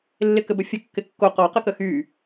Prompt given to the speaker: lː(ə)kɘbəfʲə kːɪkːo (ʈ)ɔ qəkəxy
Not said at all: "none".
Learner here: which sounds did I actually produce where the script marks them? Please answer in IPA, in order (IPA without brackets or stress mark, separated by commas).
ɪ, q